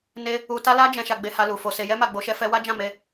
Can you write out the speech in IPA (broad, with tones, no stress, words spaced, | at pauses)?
ne˧ | u˧ ta˦la˦ d͡ʒɛ̃˧ ʃa˧ɡ͡be˧ha˧ lu˨fo˧se˧ jɛ˦ma˧ ɡ͡bo˧ʃɛ˦fɛ˦ wa˦d͡ʒã˦˨ me˧